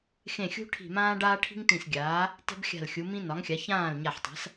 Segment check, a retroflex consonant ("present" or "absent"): present